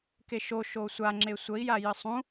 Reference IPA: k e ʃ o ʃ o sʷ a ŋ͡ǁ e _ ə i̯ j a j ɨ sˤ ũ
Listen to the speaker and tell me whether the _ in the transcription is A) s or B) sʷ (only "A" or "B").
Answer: B